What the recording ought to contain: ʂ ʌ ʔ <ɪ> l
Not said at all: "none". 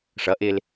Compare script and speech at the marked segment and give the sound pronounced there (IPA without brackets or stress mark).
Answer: ɪ